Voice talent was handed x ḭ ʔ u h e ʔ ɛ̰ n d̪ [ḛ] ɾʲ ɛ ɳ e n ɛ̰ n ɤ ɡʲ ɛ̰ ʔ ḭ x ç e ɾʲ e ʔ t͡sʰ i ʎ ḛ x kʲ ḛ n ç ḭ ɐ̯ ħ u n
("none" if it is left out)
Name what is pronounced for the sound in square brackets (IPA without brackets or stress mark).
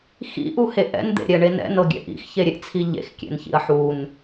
ḛ